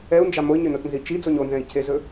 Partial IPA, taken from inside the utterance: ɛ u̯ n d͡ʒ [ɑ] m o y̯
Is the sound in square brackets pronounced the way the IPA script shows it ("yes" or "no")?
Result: yes